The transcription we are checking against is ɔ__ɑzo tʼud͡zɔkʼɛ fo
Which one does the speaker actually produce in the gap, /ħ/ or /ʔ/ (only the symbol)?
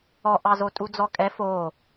ʔ